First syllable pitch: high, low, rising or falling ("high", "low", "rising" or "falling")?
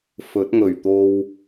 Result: rising